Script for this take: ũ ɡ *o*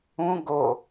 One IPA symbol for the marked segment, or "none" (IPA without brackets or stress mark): o